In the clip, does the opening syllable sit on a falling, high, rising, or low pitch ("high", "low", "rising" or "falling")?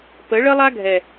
rising